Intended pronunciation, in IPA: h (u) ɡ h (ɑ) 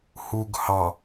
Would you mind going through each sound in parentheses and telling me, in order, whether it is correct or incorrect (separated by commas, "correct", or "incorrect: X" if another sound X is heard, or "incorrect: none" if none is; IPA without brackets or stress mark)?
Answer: correct, correct